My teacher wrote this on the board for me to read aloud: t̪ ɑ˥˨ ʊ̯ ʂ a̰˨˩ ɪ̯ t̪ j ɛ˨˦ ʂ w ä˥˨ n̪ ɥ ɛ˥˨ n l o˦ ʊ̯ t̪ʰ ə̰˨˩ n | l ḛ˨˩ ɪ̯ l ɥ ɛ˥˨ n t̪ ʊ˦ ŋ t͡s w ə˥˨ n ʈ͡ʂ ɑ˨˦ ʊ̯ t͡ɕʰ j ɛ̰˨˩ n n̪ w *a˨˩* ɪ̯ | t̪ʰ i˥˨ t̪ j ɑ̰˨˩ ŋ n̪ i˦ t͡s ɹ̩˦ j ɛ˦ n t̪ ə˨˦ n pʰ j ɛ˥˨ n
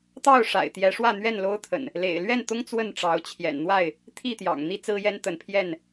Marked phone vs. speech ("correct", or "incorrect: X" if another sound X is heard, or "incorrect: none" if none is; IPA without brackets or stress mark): incorrect: a˥˨